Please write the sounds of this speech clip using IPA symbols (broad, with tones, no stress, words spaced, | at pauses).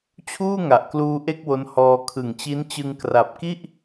t͡ɕʰuː˥˩ŋa˨˩ʔkluː˧ ʔe˥˩k̚wo˦˥nhɔː˧ kʰɯ˨˩ŋt͡ɕi˦˥nt͡ɕɯ˧ŋ kra˨˩p̚ki˥˩ʔ